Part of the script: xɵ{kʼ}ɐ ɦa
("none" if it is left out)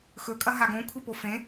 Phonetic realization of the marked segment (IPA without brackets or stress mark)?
kʼ